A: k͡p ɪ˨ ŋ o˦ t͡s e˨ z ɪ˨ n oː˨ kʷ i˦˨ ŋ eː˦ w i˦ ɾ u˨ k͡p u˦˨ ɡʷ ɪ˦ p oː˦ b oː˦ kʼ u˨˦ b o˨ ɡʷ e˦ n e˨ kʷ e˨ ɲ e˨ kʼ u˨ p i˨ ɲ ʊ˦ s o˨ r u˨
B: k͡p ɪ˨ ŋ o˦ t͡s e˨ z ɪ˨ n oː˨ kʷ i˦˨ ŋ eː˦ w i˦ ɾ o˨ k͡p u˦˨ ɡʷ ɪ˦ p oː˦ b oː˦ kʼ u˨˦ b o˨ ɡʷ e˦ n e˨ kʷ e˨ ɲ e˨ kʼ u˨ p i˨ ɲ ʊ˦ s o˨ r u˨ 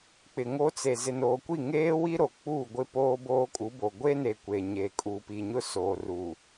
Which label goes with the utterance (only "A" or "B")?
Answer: B